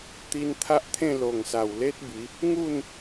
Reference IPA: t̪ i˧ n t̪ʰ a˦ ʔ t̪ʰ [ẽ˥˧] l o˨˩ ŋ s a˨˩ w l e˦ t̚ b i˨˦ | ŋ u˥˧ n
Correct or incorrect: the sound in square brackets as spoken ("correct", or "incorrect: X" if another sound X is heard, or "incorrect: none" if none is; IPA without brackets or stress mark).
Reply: correct